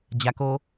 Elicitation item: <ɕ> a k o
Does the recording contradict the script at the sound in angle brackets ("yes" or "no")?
yes